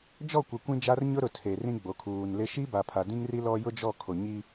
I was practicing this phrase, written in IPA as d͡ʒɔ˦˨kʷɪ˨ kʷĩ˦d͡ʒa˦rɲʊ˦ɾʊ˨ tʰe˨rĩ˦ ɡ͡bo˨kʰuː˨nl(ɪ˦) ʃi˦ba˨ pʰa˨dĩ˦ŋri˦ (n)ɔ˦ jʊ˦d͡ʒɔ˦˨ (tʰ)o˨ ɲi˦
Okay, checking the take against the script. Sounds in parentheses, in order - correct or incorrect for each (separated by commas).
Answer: correct, incorrect, incorrect